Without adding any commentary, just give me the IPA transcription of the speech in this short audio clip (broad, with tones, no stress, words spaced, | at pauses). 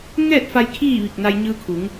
ŋɛː˥˨t̚fa˧j kʰiː˥˨ʋi˧˩k̚ na˧jɲɯː˧kʰu˩˧ŋ